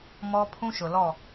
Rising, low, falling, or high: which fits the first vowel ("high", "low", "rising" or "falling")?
high